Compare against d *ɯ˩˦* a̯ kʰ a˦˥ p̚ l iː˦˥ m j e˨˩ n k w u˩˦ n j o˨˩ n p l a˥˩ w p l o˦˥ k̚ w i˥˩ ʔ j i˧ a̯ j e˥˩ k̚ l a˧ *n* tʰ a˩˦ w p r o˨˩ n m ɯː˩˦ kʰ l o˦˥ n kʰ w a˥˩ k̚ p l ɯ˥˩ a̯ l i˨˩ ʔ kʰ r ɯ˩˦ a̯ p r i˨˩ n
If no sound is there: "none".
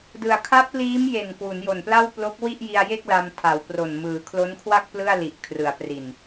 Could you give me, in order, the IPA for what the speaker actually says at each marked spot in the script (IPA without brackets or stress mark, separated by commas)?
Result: ɯ˩˦, m